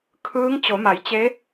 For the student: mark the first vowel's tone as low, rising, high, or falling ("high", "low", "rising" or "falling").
rising